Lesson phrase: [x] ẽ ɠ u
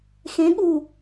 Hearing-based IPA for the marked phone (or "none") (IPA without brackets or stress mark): x